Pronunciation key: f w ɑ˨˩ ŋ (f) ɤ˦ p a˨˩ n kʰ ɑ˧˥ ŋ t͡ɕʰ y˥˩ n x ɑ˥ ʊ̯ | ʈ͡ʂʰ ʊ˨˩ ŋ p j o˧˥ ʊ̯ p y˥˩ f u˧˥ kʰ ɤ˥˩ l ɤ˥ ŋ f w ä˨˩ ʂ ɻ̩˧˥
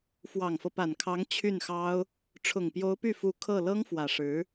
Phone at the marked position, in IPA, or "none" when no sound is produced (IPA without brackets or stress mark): f